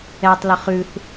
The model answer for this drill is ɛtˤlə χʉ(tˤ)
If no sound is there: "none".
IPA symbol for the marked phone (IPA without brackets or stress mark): θ